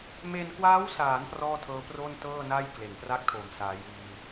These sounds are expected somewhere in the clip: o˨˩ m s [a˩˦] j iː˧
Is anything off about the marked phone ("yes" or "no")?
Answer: yes